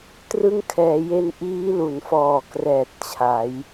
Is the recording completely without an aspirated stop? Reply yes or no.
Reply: no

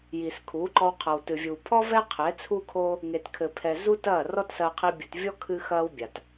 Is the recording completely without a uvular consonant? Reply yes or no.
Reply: no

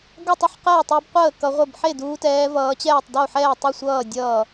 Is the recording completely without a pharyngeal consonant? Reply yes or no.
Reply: no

